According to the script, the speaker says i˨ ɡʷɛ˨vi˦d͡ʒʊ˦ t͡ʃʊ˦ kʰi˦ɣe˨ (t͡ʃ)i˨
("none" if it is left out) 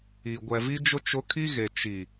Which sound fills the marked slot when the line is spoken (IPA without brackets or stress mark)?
t͡ʃ